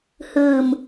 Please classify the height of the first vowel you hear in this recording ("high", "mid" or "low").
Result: high